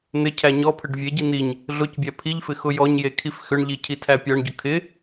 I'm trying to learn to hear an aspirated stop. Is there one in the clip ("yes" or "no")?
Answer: yes